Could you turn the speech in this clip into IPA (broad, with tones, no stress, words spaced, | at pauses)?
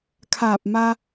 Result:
kʰaː˧˩p̚ma˧